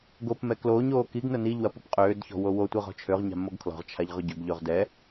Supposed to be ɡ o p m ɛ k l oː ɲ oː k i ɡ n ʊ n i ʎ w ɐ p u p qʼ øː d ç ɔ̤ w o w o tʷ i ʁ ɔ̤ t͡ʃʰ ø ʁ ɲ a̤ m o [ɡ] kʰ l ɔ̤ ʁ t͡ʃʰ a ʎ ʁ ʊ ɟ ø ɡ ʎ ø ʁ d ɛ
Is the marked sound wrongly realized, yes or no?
no